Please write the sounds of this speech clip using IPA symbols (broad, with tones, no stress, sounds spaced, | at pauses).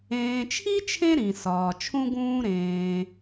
ẽː˨ t͡ʃʰ i˥ t͡ʃʰ ẽ˦ ɾ ĩ˩ s ɒː˩ t͡ʃʰ ũ˦ ɡ ũː˦ ɾ ẽː˨